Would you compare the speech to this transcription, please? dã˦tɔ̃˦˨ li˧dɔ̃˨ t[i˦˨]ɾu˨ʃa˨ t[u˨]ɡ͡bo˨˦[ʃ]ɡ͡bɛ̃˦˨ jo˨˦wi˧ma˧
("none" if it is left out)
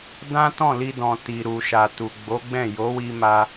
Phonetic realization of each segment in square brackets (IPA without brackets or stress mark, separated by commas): i˨, u˨, none